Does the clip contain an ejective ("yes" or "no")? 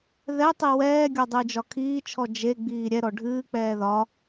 no